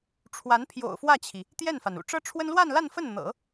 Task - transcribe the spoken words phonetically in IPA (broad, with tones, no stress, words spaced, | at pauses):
ʈ͡ʂʰwa˧˥npʰjo̰˨˩ʊ̯fwä˥˩t͡ɕʰi˩ | t̪jɛ˥˩nfa˩nṵ˨˩ ʈ͡ʂɤ˥ʈ͡ʂʰwə˥n lwa˥˧nla˥˧nfə˥˩n n̪ɤ̰˨˩˦